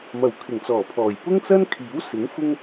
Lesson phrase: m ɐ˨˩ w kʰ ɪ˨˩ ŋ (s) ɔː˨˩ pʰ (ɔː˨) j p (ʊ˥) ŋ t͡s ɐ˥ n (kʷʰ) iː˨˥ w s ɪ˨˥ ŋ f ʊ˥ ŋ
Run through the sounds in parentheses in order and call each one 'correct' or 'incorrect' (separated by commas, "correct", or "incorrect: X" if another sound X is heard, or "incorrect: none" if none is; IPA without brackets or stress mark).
incorrect: t͡s, incorrect: ɔː˨˩, correct, incorrect: kʰ